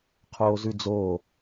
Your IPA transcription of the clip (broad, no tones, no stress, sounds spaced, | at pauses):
qʰ oː z ʉ d͡z oː